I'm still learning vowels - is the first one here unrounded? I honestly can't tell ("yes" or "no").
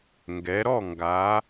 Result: yes